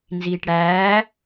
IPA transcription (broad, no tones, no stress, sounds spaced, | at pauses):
n z iː ʈ ɽ æː